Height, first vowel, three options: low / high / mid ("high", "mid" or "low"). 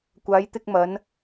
low